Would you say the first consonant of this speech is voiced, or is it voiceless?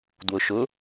voiced